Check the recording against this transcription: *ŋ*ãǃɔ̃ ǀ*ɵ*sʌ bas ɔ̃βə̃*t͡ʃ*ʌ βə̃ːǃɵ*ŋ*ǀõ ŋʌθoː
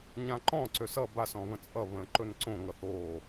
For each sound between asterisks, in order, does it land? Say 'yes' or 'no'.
no, no, no, no

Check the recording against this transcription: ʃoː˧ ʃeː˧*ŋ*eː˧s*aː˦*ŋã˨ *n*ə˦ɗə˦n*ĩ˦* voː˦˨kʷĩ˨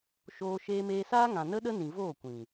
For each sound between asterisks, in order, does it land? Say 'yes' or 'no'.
no, yes, yes, no

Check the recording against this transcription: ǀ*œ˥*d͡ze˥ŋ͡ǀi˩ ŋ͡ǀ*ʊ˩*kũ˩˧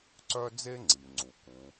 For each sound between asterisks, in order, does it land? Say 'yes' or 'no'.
yes, no

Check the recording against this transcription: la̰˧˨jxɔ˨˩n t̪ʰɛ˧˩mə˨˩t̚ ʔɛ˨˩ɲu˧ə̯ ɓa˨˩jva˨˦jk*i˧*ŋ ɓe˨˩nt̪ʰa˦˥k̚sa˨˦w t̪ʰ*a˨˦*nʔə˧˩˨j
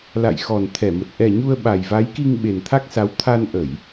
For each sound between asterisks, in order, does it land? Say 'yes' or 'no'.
yes, no

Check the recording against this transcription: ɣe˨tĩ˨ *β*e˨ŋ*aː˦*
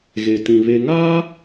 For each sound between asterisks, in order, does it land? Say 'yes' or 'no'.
yes, yes

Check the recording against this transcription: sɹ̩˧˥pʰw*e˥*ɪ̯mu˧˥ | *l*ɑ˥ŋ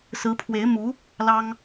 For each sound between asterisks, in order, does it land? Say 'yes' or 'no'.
no, yes

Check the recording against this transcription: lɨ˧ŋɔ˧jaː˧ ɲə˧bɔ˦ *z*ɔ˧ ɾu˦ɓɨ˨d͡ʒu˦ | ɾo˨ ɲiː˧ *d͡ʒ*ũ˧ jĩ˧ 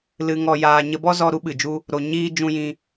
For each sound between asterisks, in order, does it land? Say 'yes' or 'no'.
yes, yes

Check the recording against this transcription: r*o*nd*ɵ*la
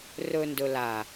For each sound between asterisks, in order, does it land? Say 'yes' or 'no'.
no, yes

